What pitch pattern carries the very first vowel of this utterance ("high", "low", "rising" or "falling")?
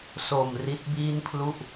low